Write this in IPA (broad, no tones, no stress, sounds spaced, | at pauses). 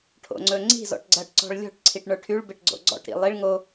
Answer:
ʈʰ o̰ ŋ͡ǀ ɵ ŋ͡ǀ i̤ z ɔ̰ ʈ ɡ͡ǀ ɐ ʈ ǀ ɔ̤ ɭ lʲ ɔ̤ ʈ ǀʰ i ʈ ɳ ə˞ ʈʰ y ɭ b e ʈ ɡ͡ǀ o̰ ɡ͡ǀ ɔ̰ ʈ ɾ ḭ lˠ i ɭ ŋ o